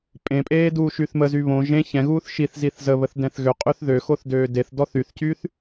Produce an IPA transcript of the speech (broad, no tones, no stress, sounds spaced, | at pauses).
pʼ ẽ pʼ eː d uː ʃ y θ m ə z y β õ ʒ ẽ ç ɛ̃ ɣ uː θ ʃ i θ z i θ z ə β ə θ d ɛ̃ θ ɣ ø qʼ ø θ ð ø x o θ d øː d e θ d ɔ θ y θ c yː θ